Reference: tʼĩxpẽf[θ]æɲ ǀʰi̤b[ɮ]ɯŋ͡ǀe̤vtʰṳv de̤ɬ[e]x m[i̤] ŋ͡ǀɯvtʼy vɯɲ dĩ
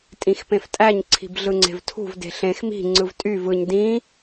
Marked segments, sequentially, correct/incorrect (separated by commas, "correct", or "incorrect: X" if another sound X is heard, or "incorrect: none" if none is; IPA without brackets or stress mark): incorrect: tʼ, correct, incorrect: ẽ, correct